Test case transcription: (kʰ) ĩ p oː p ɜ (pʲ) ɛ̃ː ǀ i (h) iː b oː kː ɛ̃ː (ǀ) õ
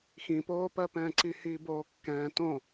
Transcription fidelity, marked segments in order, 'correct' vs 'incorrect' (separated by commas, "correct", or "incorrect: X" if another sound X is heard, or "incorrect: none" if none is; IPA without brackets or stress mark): incorrect: x, incorrect: p, correct, incorrect: t